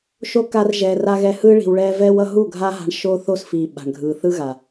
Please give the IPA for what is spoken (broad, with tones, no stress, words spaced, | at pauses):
ʃo˦ ka˧rʒɛː˨r a˧ɣɛ˧hɯ˦ ɭi̤˨wɭɛː˧ vɛː˧wʌ˧ɦu˦˨ ɡʱa˦ ɦa̤˦ɳ ʃoː˦θo˦sfiː˨ ɓa̤˨ɳɡʱɯː˨ θɯ˦ɣa˨